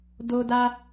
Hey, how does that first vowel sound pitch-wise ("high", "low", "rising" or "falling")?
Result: high